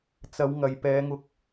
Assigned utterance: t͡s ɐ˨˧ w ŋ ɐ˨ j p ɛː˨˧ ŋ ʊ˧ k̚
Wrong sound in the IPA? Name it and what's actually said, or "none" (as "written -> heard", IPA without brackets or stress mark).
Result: none